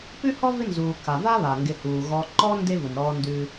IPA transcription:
p ʉ˥ h ɔ˥ v ɪ˦ n z uː˩ k a˩ v a˥ β a˩ ŋ ɡ ɪ˨ h uː˩ ɣ ɔ˨ ǃ ɔ˦ n d e˥ v ʊ˩ n ɾ ɔː˦ n d ʉ˦

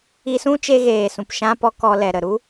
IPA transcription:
i˧ s ũ˦ t͡ʃ e˧ ɣ eː˨ s ũ˨ p ʃ ã˧ p ɔ˧ k ɔ˧ l ɛ˨ ɾ ə˨ ɾ u˦

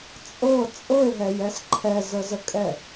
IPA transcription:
t͡sʼ ɤ t͡sʼ ɤ e̯ ɦ ɛ j ɛ s ǃʰ ɛ z ə z ə kʼ ɛ

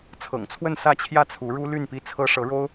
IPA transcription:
t͡sʰ ɤ̰˨˩ ŋ t͡sʰ w ə˥˧ n s ä˥˧ t͡ɕʰ j ä˥˩ t͡sʰ u˧˥ ɻ u˥ l y˥˩ n p i˥ t͡sʰ ɤ˥ ʂ ɤ˧˥ ɻ o˥ ʊ̯

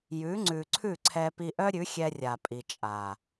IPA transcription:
j ʉ˨˦ ŋ͡ǀ ʉ˨ ǀʰ ʉ˦˨ ǀʰ ɛ˧ p i˧ ʔ œ˦ ɾʲ ʉ˨˦ xʲ ɛ˧ rʲ a˨ pʼ i˨ t͡ʃʼ a˨

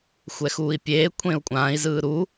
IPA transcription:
xʷ ɛ x uː i̯ pʲ eː kʷʰ ẽ u̯ kʷʼ ãː i̯ z ɯː ɾ u

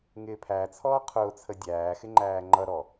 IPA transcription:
ŋ ɪː pʰ æ t͡sʰ ɔː qʰ ʊː t͡sʰ ə dʲ æː x ɪ ŋ͡ǃ æː ŋ͡ǃ ʌ ɾ ɔ

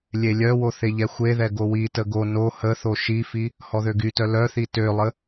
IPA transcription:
lʲ e lʲ œ w o θ e ʎ ɛ xʷ e ð ɛ ɡ o w i t ə ɡ o n o h ə θ o ʃ i f i | h ɔ ð ø ɡ y t œ l œ θ i t ø lˠ ə

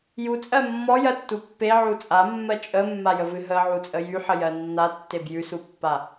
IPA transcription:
j u t͡sʼ ɜ mː ɔ j ɜ tː u pː e ʕ u t͡sʼ a mː ɜ t͡ʃʼ ə mː a j ə v ɨ ɦ ə ʕ u t͡sʼ ə j y ħ ə j ɜ nː a tː e b j ʉ s u pː a

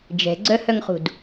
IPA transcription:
d͡ʒ ɛ̤ ɡ͡ǀ œ h œ ŋ χ ṳ d

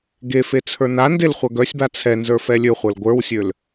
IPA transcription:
ɡ e f e t͡sʰ ə˞ n a n d e l χʷ œ ɡ œ sʲ b a t͡sʰ ɛ n z ə˞ f ɛ lʲ ø χʷ ə˞ l ɡʷ ə˞ w sʲ ø l

